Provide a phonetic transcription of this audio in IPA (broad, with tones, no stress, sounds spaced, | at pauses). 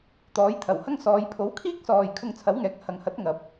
t̪ ɔː˨˥ j t̪ʰ ɐ˨˩ w h ɐ˥ ŋ s ɔː˨˧ j pʰ o˨˥ w kʰ iː˥ k̚ s ɔː˨ j kʰ ʊ˧ ŋ t͡sʰ ɐ˨˥ w ŋ ɛː˨˥ k̚ h ɐ˨ ŋ h ɐ˨˥ t̚ ŋ ɐ˨ p̚